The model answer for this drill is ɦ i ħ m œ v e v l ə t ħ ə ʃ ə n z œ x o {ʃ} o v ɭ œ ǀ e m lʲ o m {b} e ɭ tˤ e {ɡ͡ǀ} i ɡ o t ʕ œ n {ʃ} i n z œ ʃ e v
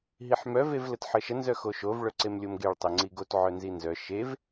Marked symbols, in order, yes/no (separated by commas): yes, no, no, no